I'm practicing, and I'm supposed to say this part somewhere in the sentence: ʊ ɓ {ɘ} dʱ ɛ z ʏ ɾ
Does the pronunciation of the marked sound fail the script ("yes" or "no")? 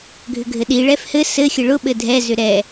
no